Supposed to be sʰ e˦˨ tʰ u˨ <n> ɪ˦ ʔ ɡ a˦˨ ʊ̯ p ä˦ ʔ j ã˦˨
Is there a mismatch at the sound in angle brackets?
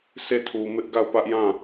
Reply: yes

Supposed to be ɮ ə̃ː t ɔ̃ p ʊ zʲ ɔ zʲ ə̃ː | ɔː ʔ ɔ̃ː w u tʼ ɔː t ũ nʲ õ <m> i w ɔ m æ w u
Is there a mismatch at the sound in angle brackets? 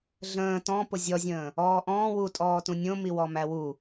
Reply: no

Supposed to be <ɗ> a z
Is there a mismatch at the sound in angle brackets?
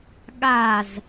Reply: yes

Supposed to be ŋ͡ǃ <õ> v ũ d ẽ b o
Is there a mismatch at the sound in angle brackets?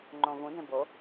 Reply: no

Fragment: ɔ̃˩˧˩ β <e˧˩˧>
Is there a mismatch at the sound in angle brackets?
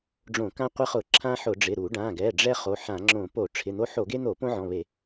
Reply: no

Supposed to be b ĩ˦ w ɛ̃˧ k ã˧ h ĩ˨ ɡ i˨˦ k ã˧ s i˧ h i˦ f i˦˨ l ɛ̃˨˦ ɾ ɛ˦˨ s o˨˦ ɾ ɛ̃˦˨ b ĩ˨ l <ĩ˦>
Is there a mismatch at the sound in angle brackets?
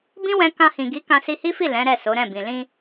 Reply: yes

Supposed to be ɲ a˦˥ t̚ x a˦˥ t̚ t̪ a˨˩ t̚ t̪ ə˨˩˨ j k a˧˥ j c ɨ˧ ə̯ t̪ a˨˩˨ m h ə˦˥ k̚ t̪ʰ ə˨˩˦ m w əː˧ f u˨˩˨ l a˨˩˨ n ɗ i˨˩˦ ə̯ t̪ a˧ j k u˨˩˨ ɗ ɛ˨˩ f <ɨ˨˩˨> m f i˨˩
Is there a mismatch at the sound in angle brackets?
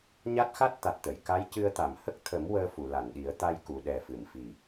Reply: no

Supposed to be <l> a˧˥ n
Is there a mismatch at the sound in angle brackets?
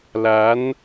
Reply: no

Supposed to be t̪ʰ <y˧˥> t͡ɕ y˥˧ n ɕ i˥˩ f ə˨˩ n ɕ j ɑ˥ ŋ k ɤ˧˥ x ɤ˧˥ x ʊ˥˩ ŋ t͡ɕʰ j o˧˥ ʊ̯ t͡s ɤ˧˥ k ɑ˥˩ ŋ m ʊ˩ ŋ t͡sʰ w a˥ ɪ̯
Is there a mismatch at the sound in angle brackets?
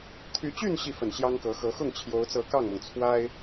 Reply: no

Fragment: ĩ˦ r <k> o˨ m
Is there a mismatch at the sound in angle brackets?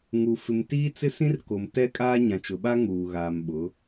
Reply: no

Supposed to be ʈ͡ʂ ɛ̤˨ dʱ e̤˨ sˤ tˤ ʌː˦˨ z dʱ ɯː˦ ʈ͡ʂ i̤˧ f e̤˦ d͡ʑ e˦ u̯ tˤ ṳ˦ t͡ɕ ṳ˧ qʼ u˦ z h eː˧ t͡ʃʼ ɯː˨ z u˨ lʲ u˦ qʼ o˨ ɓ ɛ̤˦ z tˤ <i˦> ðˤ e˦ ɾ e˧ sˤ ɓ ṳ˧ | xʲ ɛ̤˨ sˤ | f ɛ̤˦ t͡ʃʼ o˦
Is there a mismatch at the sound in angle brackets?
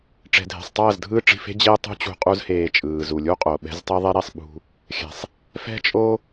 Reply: no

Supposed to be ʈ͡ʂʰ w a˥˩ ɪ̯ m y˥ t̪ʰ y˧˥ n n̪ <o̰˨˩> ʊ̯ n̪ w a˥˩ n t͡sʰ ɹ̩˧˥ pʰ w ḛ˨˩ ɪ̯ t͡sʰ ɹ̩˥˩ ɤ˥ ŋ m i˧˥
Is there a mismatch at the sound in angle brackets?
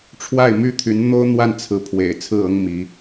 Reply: yes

